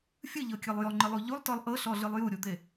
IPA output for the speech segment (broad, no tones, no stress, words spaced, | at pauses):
fʲɯʎɤkʲɤlˠ jɔŋ͡ǃɯlˠu ʎulˠtɔlˠ ʔɤɬɔɮɯlˠ juɾʲud̪e